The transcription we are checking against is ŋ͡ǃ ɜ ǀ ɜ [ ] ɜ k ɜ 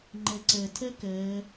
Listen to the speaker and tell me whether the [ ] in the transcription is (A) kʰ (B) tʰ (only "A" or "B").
B